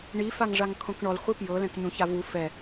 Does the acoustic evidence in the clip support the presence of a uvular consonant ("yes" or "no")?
yes